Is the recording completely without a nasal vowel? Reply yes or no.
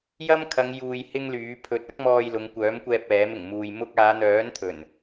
yes